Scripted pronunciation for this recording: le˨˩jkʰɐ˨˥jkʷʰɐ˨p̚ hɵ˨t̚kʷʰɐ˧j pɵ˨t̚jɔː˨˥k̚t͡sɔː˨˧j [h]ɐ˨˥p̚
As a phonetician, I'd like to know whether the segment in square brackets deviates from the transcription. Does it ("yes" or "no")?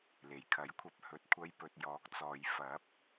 yes